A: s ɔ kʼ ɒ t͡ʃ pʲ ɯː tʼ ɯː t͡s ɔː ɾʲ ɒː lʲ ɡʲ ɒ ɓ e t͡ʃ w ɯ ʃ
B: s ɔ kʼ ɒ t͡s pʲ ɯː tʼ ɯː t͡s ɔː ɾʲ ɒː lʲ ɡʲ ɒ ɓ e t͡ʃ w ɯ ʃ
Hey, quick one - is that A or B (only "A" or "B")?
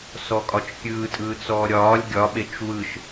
A